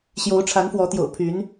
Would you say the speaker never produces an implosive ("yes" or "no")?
yes